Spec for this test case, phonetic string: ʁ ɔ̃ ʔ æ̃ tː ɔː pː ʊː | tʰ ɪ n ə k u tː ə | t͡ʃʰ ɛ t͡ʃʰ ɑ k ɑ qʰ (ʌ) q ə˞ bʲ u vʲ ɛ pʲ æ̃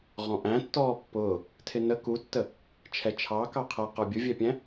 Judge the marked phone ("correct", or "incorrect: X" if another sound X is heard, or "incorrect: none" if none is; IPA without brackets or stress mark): correct